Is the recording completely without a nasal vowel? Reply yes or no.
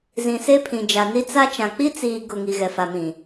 no